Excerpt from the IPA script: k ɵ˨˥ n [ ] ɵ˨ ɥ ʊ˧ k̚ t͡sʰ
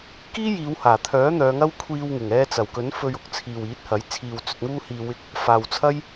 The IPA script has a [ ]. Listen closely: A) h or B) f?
B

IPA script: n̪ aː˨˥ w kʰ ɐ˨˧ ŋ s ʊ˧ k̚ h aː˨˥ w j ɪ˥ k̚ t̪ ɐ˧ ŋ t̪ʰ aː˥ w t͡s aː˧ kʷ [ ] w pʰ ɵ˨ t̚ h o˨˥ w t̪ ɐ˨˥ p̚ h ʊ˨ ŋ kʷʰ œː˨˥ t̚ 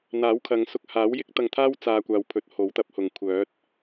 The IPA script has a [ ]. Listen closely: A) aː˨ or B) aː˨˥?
A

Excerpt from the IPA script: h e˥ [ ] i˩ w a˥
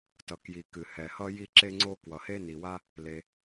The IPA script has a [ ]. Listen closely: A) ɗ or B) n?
B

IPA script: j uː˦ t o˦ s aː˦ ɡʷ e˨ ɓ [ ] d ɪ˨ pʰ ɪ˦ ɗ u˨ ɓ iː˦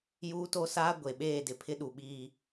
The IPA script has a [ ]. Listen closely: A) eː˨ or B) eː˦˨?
B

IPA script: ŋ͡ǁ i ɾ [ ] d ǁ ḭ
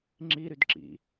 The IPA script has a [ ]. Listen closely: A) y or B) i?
A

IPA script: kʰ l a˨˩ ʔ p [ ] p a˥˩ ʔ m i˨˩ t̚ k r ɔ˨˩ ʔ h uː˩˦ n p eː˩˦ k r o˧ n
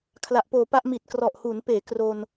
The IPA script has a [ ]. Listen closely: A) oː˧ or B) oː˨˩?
B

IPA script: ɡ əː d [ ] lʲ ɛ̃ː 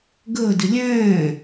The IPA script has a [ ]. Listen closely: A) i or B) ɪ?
B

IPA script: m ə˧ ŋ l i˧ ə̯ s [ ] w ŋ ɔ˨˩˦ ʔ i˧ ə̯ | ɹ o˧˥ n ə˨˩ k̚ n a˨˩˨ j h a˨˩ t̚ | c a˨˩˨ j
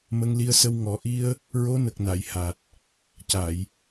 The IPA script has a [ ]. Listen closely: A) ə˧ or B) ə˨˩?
A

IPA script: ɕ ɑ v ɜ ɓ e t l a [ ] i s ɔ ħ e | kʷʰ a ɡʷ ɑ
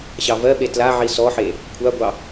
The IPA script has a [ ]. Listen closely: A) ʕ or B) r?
A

